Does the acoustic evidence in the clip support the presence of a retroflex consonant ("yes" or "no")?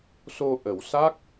no